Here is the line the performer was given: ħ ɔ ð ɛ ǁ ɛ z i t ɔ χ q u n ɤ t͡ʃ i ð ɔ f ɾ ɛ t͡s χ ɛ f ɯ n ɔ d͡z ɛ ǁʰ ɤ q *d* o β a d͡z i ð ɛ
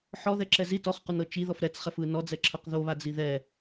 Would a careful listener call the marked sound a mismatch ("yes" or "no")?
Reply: yes